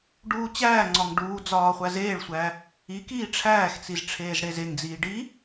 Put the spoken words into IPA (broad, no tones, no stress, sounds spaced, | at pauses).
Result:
ɖ uː t͡ɕ æː ŋ͡ǀ ɒ ŋ ɖ uː d͡z ɒː χʷ æ z eː ɭ sʷ æː | i k iː ʈ͡ʂʰ æː x t͡s i z ʈ͡ʂʰ eː z ɽ e z e ŋ d͡z iː ɖ i